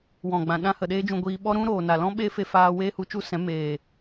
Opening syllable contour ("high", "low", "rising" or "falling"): low